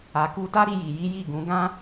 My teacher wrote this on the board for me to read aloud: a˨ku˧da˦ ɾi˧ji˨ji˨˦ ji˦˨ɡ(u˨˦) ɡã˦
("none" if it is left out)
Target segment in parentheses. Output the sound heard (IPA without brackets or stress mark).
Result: ũ˨˦